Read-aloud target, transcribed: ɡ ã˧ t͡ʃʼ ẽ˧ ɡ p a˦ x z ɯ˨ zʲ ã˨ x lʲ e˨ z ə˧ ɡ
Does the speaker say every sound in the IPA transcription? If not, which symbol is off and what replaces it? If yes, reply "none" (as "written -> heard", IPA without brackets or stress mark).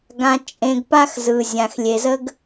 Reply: none